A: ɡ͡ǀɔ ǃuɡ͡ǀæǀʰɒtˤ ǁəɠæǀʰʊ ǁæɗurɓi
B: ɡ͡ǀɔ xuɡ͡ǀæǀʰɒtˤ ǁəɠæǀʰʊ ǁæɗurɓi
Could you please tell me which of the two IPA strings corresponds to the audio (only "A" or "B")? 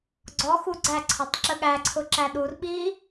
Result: B